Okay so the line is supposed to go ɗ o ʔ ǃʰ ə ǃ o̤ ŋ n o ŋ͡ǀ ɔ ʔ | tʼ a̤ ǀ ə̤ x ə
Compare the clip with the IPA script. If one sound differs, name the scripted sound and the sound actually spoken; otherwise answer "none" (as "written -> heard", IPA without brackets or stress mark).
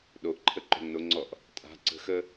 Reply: none